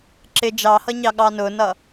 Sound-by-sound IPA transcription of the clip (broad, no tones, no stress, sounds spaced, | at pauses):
ǁ ɪ d͡ʒ ɑ h ʌ ɲ ɑ ɠ ɑ n ʊ n ʌ